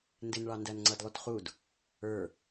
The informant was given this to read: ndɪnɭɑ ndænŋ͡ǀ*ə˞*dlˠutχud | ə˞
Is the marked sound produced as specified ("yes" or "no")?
no